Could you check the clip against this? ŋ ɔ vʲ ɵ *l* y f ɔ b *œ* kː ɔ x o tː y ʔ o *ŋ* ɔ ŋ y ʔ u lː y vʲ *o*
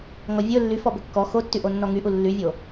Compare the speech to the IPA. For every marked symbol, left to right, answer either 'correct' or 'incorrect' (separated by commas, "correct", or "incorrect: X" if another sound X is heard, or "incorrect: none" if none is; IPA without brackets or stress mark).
incorrect: lː, incorrect: ɵ, incorrect: nː, correct